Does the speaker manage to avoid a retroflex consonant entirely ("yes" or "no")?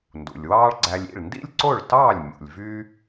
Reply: no